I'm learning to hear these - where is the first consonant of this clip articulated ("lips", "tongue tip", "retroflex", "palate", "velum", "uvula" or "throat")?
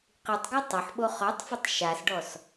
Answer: uvula